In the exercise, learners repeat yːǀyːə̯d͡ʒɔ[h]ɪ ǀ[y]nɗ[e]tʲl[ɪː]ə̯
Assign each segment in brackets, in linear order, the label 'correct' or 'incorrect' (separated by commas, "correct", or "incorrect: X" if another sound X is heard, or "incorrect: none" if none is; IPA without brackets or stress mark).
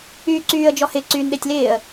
correct, incorrect: yː, correct, correct